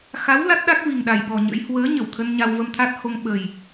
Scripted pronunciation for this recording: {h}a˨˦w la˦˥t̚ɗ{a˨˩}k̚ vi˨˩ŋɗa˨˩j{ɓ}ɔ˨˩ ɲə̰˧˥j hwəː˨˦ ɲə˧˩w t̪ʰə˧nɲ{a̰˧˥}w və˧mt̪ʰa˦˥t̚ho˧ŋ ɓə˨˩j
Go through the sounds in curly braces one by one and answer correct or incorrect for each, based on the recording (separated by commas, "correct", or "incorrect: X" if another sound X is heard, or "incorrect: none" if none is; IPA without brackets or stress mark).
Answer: incorrect: x, incorrect: a˦˥, correct, incorrect: a˧